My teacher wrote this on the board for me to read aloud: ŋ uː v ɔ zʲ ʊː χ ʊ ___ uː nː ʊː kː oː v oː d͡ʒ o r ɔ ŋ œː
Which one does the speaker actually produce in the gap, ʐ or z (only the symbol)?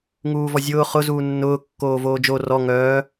z